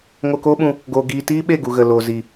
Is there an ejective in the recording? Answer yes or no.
no